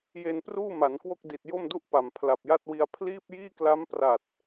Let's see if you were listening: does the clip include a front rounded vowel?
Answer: no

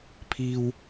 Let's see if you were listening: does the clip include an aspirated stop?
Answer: yes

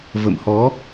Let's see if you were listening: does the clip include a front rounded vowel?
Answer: no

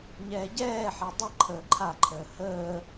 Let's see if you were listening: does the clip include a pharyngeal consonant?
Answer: yes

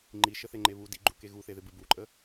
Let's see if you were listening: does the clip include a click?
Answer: yes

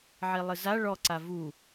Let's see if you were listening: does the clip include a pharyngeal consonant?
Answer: yes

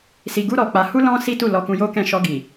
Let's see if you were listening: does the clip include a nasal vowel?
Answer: yes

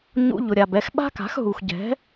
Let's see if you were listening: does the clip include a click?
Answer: no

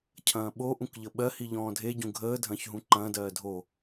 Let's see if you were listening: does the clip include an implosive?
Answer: yes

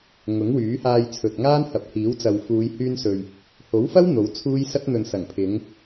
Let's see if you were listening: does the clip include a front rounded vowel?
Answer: yes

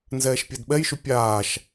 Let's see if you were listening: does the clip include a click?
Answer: no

